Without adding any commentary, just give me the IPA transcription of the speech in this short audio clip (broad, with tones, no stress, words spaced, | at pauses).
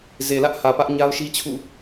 ze˨lä˦ʔhä˨ pä˦ʔ ɲa˦ʊ̯ʃi˦t͡ɕʰṵ˦˨